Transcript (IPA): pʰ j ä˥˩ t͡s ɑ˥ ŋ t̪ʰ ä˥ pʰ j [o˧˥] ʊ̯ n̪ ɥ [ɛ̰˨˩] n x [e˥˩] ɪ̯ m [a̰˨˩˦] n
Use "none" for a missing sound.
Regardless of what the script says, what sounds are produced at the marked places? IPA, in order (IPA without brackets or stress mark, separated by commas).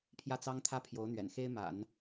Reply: o˧˥, ɛ̰˨˩, e˥, a̰˨˩˦